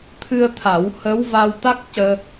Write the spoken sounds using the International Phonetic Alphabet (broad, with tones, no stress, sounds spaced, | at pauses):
t̪ʰ ɨ˧ ə̯ t̪ʰ a˨˩˦ w h ə˧˥ w v a˧ w t̪ a˦˥ k̚ c əː˧